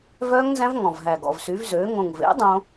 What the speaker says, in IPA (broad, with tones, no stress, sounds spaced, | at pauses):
v œː˦˥ ŋ n z æ̃˦˥ v ŋ ɔ̃˨˩ v ɦ æ˨˩ ɡ ɔ̰˨˩ v s y˩˥ v z øː˩˥ ŋ õ˨˩ ŋ v ḛ˩˥ dˤ õ˦˥